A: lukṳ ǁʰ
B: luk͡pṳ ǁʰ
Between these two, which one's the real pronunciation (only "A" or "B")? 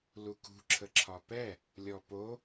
A